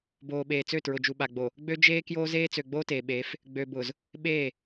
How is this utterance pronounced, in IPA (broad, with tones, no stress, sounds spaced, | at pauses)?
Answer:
b oː˨ ɓ eː˨ t͡s ø˦˨ t ɹ ʊ˨ d͡ʒ u˨ ɓ a˨ ɡ͡b o˨ | ɡ͡b ø˦ d͡ʒ eː˦ k j oː˦ z eː˦ t͡s ø˨ ɡ͡b oː˦ t eː˨ ɓ eː˨˦ f | ɡ͡b ø˨ b ʊː˨ z | ɓ eː˦˨